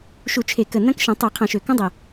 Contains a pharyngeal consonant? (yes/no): no